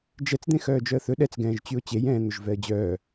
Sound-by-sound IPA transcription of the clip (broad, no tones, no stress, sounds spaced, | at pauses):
d͡ʒ ɛ t͡s d̪ ẽ x œː d͡ʒ œ ə̯ θ ɵ ɗ ɛ t͡s ɡ ɛ̃ː ʒ t͡ɕ y ʊ̯ t͡ɕ e j ɛ̃ː n̪ ɵ ʒ v ɛ ə̯ d͡ʑ œː